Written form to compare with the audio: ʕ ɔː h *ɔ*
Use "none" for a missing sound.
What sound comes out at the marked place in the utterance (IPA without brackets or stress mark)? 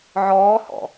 ɔ̰